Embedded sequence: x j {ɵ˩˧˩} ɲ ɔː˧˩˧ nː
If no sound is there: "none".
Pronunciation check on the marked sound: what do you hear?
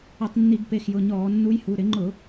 ʊ˩˧˩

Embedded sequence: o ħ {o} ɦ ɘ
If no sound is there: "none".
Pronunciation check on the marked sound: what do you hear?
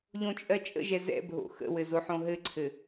õ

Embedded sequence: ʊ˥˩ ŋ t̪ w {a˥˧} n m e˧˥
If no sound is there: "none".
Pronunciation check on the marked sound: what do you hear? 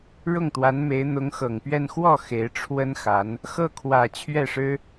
a˧˥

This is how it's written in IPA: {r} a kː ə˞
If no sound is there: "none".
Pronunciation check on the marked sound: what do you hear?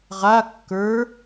ʁ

